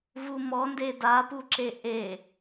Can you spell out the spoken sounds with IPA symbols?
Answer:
v u m ɔ n d e d a p u ǁ e ʔ e

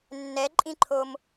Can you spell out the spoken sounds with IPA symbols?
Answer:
nː ɛ ǃʼ ĩ ǃʰ o m

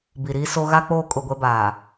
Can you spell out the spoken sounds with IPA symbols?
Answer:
b i˨ ɾ iː˦ s o˦ ɣ a˦ k͡p oː˦˨ kʼ ʊ˦˨ ɡʷ ɛ˦ b aː˨

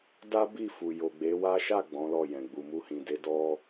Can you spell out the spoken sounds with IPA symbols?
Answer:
d a˦ b i˦˨ f u˨ j o˨ ɡ͡b e˨˦ w a˦ ʃ a˦˨ ɡ͡b ɔ̃˨˦ l ɔ˦˨ j ɛ̃˨ ɡ͡b u˨ m u˧ h ĩ˨ d e˨˦ d ɔ˦

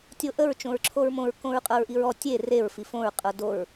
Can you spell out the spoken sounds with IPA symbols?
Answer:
tʲ o ʔ ə ɹ t͡ʃ õ ɹ ǁʰ o ɹ m õ ɹ k õ ɹ qʼ ɤ ɹ ʔ i ɹ ɔ tʲ e r e ɹ f i f õ ɹ qʼ ɤ d o ɹ

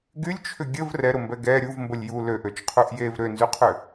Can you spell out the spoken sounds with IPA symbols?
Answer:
ɡ y lʲ t͡ʃʰ ʏ ɡʲ ə v r ɛ ɾ ʊ m b ɛ ɡ ɛ ɾʲ u v m b ə lʲ j u l ø ʔ ø t͡ʃ qʰ u ʔ j e v ɾ ø n z y qʰ ʏ

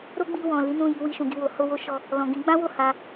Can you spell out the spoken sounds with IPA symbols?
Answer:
ɾ o˦ ɡ͡b i˧ w ɔ̃˨ l i˨˦ n ũ˦˨ j i˧ w i˧ ʃ ũ˨ ɡ i˧ w o˨ h o˧ w o˧ ʃ ɔ˧ | l ɔ̃˨ ɡ ĩ˨˦ ɡ͡b ã˦ w o˦˨ h a˧

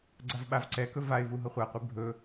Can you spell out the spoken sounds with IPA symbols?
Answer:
ɡ͡ǀ a v ɓ a v ǀ ɛ k ɵ v a ɪ̯ v u ɦ ɤ χʷ a qʷ e bʱ ɵ

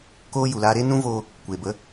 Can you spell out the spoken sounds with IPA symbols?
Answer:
k oː˦ j u˨ l aː˧ ɾ eː˦ n ũ˦ v oː˧ | kʷ eː˨ b ə˨˦

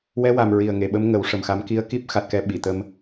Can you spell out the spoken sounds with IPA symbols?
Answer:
w ɛ˧˥ w a˨˩ m ɹ i˨˩ ə̯ ŋ e˨˩˨ ɓ ə˧˥ m ŋ ə˨˩˦ w ʂ ə˨˩ m x a˧˥ m k i˧˥ ə̯ k i˦˥ p̚ x a˨˩ t̚ k ɛ˨˩˦ ɓ i˨˩˨ t̪ ə˧ m

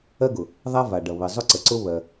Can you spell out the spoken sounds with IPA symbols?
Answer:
ɜ˥ ɡ ʊ˩ | ðˤ a˥ v a˩ ɖ ʌ˩ β ɘ˩ zˤ ʊ˥ ǀ ə˩ ǀ ʊ˥ β ɜ˩

